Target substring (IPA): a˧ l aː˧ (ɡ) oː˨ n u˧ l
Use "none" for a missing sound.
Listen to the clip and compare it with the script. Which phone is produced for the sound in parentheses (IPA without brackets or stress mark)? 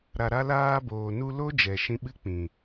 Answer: b